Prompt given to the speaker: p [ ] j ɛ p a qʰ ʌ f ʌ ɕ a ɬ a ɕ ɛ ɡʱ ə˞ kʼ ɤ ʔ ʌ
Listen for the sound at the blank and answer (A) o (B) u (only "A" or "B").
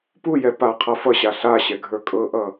B